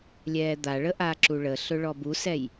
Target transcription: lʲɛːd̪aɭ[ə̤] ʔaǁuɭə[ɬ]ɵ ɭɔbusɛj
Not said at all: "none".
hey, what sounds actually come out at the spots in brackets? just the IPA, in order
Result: ə, ɬ

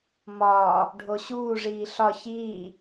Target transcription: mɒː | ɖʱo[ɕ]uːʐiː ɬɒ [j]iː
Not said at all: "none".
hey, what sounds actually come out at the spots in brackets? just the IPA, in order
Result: ɕ, ç

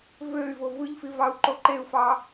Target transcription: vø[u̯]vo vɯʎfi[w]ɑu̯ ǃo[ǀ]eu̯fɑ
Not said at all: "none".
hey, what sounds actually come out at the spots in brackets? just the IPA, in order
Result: y̯, v, ǃ

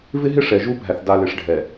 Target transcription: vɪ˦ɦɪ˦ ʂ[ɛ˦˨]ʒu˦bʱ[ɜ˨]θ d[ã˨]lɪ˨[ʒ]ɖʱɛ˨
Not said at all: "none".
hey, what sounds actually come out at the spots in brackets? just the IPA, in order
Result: ɛ˨, æ˨, a˨, ʂ

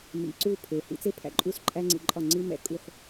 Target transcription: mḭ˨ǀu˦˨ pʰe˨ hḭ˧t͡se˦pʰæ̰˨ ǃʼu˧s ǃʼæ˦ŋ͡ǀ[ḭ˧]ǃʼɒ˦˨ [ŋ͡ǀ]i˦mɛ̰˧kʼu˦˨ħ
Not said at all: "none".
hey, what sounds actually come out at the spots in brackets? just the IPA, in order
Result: ḭ˧, ŋ͡ǀ

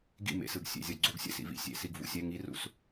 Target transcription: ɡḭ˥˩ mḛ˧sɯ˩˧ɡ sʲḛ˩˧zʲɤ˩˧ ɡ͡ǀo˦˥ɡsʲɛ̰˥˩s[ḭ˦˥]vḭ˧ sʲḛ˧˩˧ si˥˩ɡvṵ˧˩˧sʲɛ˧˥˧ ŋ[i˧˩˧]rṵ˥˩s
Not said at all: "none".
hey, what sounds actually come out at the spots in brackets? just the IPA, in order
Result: ḭ˧, i˦˥

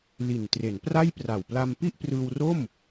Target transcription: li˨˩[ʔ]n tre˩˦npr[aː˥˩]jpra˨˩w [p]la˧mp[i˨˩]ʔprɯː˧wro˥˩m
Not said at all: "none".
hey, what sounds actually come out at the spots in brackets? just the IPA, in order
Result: none, a˥˩, p, i˥˩

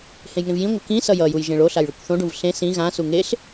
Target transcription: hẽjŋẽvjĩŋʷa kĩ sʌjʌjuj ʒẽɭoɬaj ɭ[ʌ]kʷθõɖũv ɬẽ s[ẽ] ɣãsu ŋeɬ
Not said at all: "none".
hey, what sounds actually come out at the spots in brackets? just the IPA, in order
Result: ʌ, ĩ

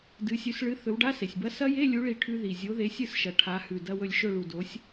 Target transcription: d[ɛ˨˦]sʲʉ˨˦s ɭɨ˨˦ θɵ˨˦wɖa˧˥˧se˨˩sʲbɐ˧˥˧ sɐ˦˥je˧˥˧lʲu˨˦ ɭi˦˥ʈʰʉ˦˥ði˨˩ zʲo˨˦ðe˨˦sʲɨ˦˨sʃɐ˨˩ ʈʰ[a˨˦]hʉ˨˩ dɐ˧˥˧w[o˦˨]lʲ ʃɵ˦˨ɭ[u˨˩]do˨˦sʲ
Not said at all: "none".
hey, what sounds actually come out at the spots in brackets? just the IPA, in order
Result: ɨ˨˦, a˨˦, ɵ˦˨, u˨˩

